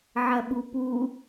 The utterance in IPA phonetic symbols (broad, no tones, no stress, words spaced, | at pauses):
ʕɐɓupu